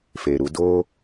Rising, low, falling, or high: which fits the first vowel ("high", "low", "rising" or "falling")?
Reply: low